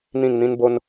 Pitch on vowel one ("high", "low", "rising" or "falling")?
falling